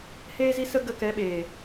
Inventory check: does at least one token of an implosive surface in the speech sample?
yes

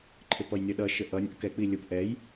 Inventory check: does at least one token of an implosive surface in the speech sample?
yes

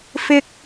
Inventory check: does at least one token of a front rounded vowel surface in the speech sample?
no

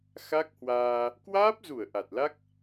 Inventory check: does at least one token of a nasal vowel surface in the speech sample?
no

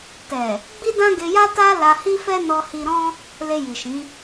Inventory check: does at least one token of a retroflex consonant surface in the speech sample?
no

